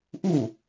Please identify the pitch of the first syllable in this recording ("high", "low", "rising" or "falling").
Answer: falling